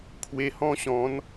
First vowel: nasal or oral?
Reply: oral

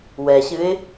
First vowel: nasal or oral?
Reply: oral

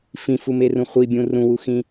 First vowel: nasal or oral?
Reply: nasal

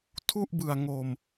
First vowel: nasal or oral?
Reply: oral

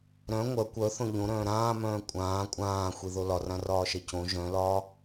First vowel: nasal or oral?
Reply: nasal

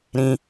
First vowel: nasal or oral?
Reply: nasal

